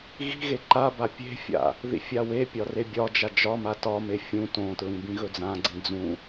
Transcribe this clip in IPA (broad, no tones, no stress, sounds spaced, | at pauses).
ɣ i̤ ɣ e ǃ a b a pʲ e̤ fʲ a̰ | ð ḭ fʲ a w e pʲ ɒ r e bʲ ɒ d͡ʒ a d͡ʒ ɒ m a t ɒ m e fʲ ũ t õ t ɹ ĩ b ĩ ɣ ɵ d͡z ã ɡ͡ǀ ĩ d͡z ũ